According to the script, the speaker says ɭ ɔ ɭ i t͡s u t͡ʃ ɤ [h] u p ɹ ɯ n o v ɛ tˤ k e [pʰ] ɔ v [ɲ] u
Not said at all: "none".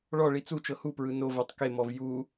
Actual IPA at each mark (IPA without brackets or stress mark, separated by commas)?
h, m, j